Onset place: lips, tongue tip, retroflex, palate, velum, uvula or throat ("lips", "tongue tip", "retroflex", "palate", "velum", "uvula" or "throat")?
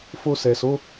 lips